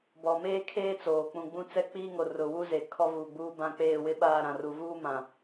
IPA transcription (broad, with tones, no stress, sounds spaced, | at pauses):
b ɔ˨ m eː˦ kʰ eː˦ t͡s oː˨ k͡p ũ˨ ɡ͡b ũ˦ t͡s ɛ˦ k͡p iː˦ ŋ o˨ r ʊ˨ w u˦ z e˨ kʰ ɔ˦ v uː˨ ɡ͡b uː˦ b ã˦ k͡p eː˦˨ w ɪ˦ ɓ aː˦˨ ɾ ã˨ r u˨ v uː˦ m ã˨